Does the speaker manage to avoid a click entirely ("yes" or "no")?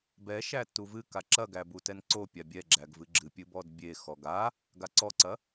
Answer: no